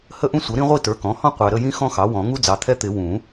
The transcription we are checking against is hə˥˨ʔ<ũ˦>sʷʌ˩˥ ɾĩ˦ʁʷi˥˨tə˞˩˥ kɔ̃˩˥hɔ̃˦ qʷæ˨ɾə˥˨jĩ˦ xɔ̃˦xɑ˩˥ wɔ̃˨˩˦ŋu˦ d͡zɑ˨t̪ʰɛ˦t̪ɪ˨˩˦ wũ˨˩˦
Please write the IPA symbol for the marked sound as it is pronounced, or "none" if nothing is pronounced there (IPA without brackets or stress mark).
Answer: ũ˦